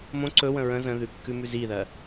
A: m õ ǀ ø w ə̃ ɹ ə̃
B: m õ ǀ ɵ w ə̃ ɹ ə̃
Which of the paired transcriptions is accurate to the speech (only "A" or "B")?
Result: B